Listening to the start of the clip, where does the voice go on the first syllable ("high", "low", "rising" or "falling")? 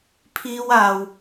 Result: high